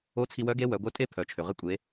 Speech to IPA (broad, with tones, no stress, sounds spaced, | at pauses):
o˧˥ t͡sʰ i˧ w œ˧˥ ɡ e˧˥ w œ˩˧ ɡʷ œ˧˥ tʼ e˥ pʰ œ˩˧ t͡ʃʰ ø˩ ʁ ɪ˧ kʷʼ e˩˧